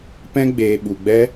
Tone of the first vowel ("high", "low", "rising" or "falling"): high